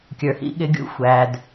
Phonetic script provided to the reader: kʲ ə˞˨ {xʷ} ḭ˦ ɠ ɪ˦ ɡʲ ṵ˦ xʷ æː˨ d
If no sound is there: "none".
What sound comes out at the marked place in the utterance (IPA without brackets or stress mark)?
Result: h